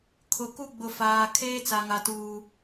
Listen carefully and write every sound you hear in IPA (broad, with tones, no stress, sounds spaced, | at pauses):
kʰ ʊ˨ k u˦ ɡ͡b ʊ˨ f aː˨ kʰ eː˦ t͡s a˨ ŋ a˨ t uː˦